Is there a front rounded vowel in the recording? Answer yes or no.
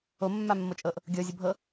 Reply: no